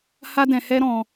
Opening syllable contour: high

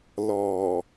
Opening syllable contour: low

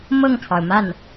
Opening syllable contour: falling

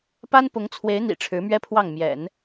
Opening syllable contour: high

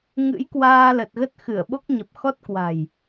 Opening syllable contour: rising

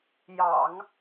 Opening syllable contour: low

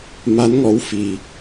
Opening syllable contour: rising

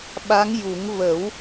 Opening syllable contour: rising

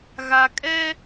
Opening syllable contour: low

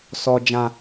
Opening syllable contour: high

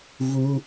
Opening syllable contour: high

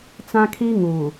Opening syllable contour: high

